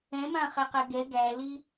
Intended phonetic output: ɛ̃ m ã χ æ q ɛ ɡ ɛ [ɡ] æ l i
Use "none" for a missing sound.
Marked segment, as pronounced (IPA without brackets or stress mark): ɡ